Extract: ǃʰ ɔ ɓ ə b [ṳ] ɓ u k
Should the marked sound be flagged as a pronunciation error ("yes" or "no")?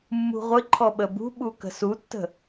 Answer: no